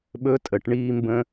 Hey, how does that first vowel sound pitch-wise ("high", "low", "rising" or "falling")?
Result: rising